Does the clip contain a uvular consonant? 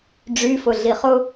yes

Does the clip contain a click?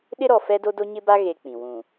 no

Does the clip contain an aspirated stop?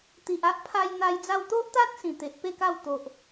yes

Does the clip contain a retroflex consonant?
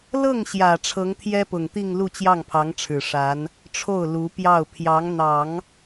yes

